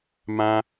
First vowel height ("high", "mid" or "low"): low